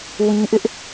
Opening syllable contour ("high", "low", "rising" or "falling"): high